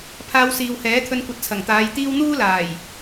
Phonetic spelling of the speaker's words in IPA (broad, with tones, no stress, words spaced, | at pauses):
pʰaː˧wsiː˨whɛː˨˥t̪ʰɵ˧n kʷɐ˧t̚t͡sʰɐ˨˩ŋt̪aː˨˧j t̪iː˥w n̪uː˥laː˨˩j